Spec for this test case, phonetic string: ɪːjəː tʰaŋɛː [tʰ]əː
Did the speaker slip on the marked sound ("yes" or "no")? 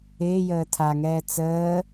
yes